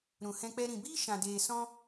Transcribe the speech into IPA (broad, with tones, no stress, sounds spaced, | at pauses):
ɾ ũ˨ h ɛ̃˧ k͡p ɛ˧ ɾ ĩ˨ b iː˦ ʃ ã˨ d eː˨ s ɔ̃˧